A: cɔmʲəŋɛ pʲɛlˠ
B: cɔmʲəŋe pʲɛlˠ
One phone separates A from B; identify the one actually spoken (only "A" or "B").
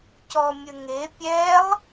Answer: B